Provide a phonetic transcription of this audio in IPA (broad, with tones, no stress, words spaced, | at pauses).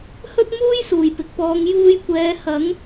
hɵ˥t̚muː˥j suː˨˩jpɪ˨k̚pɔː˨˧ŋ juː˧jkʷɛː˨˧ hɐ˨˥ŋ